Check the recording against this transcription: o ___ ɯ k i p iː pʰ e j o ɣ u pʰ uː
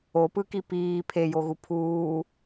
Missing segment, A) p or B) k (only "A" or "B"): A